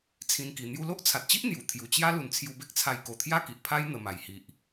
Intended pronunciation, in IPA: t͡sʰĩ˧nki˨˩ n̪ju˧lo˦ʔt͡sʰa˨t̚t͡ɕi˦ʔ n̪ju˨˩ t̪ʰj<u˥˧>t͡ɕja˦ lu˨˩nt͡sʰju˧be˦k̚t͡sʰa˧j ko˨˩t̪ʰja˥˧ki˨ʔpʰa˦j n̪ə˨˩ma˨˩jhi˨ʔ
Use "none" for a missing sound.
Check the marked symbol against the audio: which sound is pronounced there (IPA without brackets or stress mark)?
u˨˩